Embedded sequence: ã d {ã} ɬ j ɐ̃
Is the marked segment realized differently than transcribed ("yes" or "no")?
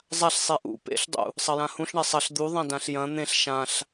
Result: no